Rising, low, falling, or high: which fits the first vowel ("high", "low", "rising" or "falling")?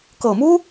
low